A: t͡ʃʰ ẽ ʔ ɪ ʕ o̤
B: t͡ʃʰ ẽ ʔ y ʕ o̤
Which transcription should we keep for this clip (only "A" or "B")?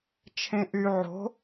B